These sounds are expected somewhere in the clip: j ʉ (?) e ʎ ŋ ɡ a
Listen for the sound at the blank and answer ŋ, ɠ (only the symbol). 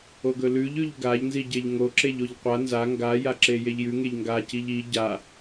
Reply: ŋ